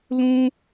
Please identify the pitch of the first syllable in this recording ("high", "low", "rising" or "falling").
high